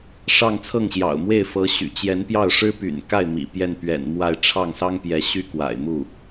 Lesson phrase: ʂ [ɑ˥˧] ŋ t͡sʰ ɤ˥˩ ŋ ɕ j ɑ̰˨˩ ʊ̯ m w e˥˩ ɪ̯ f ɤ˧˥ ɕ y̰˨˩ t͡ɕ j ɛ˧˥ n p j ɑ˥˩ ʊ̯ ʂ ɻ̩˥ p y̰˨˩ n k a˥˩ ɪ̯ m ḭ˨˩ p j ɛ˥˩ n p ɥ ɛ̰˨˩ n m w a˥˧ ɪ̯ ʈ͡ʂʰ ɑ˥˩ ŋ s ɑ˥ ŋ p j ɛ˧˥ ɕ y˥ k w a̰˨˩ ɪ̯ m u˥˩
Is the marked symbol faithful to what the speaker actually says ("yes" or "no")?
yes